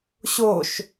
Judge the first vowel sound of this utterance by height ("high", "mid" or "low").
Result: mid